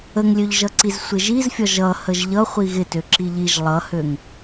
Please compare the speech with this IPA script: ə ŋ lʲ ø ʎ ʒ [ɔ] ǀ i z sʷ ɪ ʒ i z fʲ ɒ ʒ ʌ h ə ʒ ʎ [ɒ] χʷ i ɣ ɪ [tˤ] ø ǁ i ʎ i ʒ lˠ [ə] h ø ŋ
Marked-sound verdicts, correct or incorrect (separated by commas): incorrect, incorrect, incorrect, incorrect